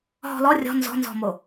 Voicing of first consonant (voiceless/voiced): voiced